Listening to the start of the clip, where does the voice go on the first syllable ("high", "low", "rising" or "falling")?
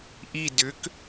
falling